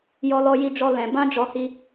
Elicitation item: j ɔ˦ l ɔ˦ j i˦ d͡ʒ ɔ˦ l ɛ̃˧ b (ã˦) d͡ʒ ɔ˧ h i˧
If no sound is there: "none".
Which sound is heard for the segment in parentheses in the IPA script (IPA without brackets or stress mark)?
ã˦